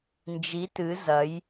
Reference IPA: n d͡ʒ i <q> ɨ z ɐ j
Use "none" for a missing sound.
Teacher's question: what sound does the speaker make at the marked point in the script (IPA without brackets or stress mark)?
t